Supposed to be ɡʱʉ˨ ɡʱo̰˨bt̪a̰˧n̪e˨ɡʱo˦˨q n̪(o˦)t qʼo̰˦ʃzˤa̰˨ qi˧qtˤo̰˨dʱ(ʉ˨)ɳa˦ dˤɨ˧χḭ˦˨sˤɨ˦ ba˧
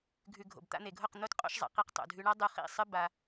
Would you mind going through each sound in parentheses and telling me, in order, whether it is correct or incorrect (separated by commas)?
correct, incorrect